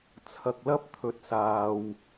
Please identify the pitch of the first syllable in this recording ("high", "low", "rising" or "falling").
low